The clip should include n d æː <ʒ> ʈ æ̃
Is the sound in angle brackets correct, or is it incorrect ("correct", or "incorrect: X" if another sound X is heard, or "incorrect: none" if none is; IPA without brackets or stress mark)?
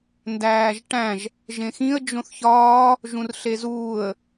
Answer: correct